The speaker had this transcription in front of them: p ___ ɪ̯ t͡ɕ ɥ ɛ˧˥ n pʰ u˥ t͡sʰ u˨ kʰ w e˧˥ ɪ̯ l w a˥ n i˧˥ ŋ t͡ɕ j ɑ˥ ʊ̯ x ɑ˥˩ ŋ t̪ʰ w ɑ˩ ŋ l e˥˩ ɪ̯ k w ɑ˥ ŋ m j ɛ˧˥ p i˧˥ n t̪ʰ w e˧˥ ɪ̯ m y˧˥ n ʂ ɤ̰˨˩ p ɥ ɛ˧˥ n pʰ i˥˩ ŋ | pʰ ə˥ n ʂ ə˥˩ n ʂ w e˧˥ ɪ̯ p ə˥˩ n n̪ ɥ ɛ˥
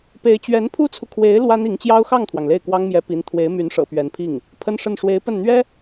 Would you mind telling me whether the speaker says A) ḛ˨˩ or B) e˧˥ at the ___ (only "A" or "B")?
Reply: B